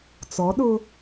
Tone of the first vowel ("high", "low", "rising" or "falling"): rising